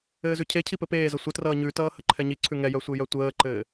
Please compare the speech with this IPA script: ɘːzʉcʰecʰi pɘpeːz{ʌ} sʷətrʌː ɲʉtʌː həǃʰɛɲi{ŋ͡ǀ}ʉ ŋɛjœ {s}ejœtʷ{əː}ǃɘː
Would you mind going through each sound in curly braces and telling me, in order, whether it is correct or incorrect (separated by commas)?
correct, incorrect, incorrect, correct